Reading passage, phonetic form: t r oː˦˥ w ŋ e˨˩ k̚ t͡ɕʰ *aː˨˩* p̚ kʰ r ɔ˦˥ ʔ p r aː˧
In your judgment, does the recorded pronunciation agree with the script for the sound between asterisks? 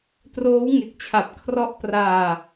no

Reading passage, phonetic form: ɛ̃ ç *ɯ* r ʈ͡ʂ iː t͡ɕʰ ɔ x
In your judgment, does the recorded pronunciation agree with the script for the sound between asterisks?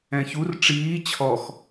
no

